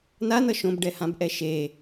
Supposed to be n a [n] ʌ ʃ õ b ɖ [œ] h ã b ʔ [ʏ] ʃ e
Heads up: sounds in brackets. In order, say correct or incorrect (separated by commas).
correct, incorrect, incorrect